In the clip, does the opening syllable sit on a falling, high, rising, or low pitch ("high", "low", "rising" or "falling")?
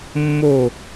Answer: falling